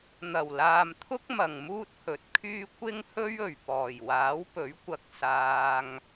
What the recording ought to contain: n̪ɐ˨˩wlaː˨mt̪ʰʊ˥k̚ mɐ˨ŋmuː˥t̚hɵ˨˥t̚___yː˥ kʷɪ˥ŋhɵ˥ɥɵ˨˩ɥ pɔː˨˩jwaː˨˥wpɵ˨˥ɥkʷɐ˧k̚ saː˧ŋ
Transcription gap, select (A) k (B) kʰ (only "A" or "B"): B